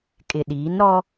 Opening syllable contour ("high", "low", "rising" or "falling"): low